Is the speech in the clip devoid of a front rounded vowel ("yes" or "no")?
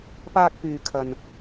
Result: no